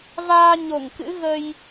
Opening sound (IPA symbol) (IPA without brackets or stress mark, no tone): v